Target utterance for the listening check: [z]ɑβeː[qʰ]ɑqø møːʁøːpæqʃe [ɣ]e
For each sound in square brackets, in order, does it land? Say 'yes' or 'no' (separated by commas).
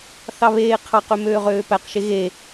no, yes, yes